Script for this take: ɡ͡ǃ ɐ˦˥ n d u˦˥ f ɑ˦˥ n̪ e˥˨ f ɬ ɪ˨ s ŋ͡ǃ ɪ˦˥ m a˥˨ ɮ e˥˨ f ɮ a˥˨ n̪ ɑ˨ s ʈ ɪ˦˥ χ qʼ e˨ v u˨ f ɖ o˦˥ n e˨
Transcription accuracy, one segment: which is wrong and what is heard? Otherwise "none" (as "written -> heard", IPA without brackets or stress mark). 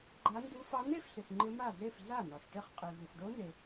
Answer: ɐ˦˥ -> a˦˥